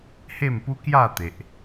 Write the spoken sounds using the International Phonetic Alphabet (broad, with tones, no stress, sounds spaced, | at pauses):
h e˥˧ m p u˦ k j a˥˧ t̪ e˨ ʔ